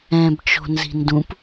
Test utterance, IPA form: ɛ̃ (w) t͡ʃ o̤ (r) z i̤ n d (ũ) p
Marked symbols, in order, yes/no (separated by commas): no, no, yes